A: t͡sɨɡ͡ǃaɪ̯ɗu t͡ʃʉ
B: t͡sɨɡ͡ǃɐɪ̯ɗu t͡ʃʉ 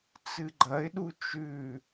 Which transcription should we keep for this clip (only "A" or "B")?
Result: B